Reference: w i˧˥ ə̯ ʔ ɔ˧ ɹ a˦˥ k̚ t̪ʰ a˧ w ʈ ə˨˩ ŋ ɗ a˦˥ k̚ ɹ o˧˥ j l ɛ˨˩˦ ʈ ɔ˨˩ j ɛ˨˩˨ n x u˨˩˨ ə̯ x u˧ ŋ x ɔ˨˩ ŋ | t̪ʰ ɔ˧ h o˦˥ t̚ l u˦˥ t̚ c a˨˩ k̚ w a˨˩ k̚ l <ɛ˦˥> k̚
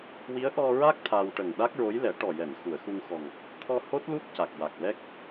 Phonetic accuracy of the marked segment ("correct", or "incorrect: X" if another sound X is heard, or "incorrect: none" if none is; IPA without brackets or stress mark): correct